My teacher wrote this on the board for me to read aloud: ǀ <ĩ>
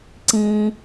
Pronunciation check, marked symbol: correct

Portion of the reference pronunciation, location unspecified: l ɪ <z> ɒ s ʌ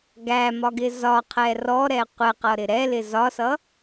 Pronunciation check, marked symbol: correct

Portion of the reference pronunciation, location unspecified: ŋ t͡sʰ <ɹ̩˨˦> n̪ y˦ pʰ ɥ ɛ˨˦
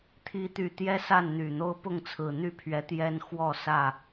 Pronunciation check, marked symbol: incorrect: ɹ̩˨˩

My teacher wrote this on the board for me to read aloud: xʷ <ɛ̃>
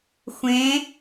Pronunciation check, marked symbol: incorrect: ẽ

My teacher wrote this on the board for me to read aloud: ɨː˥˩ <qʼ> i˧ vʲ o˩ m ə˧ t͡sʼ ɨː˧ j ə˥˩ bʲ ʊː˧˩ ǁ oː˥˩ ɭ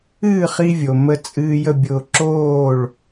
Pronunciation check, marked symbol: incorrect: χ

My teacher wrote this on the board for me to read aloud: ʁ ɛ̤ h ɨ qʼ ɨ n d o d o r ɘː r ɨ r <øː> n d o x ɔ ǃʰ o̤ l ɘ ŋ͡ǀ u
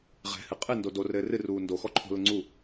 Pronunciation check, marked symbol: incorrect: uː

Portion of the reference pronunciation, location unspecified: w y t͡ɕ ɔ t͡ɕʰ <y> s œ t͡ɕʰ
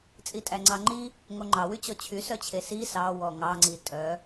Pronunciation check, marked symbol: correct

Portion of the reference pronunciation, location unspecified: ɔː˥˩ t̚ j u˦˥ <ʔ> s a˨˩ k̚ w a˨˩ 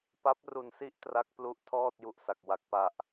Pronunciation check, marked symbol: correct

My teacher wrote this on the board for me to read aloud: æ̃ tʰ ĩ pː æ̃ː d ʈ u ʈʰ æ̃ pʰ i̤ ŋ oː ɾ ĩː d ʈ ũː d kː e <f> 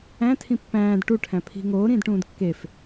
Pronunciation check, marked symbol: correct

